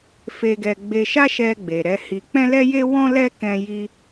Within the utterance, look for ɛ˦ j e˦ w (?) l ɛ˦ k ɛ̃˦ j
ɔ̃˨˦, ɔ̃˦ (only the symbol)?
ɔ̃˦